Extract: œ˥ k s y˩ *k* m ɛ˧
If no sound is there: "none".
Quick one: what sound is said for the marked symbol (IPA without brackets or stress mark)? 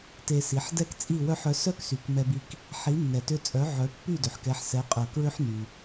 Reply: k